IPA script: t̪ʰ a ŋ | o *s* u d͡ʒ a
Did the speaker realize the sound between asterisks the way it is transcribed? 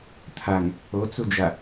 no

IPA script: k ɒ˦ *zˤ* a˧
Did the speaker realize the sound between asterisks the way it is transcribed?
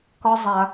yes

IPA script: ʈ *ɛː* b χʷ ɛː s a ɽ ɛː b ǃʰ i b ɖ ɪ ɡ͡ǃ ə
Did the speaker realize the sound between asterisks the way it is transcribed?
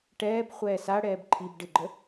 yes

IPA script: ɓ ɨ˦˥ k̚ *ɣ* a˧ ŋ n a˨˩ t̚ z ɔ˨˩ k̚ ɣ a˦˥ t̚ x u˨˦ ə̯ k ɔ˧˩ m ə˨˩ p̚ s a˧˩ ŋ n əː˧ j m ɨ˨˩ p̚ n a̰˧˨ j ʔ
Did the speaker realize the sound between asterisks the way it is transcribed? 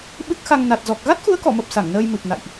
no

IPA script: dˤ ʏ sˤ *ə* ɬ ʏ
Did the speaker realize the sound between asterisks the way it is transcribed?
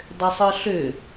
no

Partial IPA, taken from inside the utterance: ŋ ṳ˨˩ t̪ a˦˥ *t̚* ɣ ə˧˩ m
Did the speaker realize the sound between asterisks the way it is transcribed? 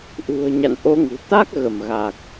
no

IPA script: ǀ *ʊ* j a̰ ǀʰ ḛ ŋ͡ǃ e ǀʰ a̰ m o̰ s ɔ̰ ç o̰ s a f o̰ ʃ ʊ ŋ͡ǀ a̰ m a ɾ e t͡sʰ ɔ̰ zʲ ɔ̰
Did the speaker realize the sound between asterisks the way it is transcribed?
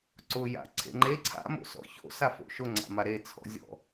yes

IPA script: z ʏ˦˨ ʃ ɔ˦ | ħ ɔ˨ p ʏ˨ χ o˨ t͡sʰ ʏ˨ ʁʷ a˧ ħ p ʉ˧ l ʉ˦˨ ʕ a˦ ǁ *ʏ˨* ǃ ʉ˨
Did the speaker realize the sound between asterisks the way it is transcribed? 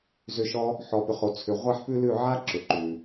yes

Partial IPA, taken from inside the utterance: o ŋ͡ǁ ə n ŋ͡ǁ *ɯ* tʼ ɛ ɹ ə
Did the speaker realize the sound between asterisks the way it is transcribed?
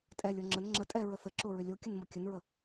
no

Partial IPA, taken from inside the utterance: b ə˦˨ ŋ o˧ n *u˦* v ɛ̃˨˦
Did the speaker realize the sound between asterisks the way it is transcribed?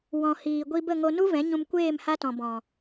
yes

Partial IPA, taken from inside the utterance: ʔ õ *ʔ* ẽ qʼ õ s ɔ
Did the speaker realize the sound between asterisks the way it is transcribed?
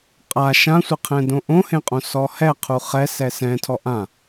no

